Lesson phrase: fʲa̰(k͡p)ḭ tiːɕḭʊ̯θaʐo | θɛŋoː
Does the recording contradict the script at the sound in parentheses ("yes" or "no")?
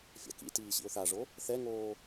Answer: yes